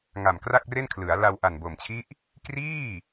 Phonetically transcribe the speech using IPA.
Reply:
ŋ a˨˩ m k r a˥˩ k̚ r e˥˩ n kʰ l ɯ˩˦ a̯ l a˧ w ʔ a˨˩ n b o˨˩ m t͡ɕʰ i˦˥ ʔ | k r iː˥˩

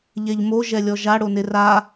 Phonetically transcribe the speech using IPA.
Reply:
ʎ ɛ ʎ m o ʒ ɛ lʲ ɔ ʒ a ɽ o n e r a

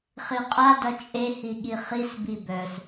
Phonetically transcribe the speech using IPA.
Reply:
χ i qʼ a d ʌ t͡ʃʼ e h i ɠ i χ i s b i b œ s

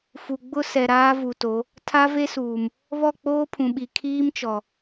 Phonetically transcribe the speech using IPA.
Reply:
f u˨ ɡ͡b ʊ˦ s ɛ˨ ɾ aː˦ v u˨ t o˨˦ | tʰ a˦ v e˦ s uː˨ m | β ɔ˦˨ k͡p oː˦ pʰ ũ˨ ɓ i˨ kʰ iː˦ m t͡ʃ ɔ˨

